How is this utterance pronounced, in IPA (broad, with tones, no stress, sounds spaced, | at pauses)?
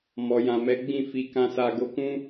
m ɔ˨ j ã˨ m ɛ˨˦ ɡ͡b ĩ˦˨ f i˧ k ã˧ s a˧ ɡ o˧ k ũ˦